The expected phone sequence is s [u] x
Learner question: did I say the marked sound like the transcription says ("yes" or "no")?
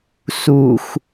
yes